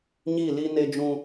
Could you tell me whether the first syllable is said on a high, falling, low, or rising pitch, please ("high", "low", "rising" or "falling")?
falling